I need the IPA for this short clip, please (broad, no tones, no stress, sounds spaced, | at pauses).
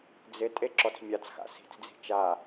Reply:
d͡z ɪ tʼ e ǁ ɔ t͡s mʲ a t͡s x a̰ s i̤ t͡s d͡z i̤ t͡ʃ a